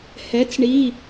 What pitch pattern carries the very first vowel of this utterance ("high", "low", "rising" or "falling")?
rising